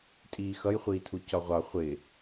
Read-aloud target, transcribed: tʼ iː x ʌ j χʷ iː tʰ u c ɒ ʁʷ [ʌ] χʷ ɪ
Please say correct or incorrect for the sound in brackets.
incorrect